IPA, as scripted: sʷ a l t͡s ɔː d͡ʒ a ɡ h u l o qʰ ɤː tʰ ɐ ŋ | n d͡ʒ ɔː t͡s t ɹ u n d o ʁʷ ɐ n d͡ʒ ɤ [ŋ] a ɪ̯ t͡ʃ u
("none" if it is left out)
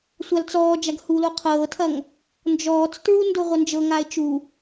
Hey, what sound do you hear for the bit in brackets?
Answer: ŋ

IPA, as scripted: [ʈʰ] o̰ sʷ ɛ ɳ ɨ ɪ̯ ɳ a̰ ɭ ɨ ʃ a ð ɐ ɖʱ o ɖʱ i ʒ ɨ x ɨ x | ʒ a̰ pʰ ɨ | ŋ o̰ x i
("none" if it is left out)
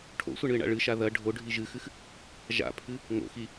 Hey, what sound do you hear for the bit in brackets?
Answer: ʈʰ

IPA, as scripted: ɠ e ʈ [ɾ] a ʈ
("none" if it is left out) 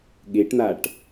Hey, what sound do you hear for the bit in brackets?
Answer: n̪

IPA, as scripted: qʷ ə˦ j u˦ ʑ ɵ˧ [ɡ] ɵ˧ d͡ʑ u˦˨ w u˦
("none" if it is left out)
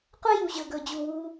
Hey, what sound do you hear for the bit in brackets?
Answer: ɡ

